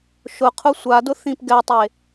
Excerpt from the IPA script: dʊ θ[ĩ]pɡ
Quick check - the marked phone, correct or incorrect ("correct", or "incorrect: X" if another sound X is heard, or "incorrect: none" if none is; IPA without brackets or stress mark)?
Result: correct